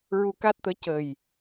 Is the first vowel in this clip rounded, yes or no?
yes